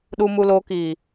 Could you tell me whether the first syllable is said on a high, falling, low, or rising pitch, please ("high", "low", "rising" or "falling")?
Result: low